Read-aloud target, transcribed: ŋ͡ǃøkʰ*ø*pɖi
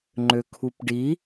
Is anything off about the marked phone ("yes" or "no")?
yes